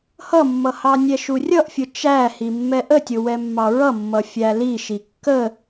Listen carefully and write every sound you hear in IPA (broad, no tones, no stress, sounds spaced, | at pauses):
h ʌ mː ʌ h ɑ nʲ ɛ ʃ u rʲ ʌ ʔ fʲ ʊ t͡ʃ æ h i mː ɛ ʔ ə tʲ ʊ w ɛ mː ɑ ɹ ʌ mː ʌ fʲ æ l i ʃ i kː ə